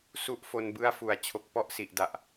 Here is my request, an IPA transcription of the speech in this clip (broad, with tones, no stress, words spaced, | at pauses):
su˦˥ʔfo˧nbɯ˦˥a̯ fu˨˩a̯t͡ɕʰo˨˩k̚ pɔ˦˥ʔsi˨˩ʔda˨˩ʔ